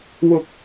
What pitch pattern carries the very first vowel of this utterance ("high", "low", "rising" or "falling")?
high